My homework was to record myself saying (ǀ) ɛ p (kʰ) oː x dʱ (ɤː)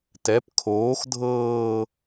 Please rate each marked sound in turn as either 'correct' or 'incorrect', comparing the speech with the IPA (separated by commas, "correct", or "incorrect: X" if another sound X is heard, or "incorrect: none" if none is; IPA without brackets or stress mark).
incorrect: t, correct, correct